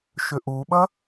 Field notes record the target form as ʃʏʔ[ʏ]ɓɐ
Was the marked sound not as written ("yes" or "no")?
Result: yes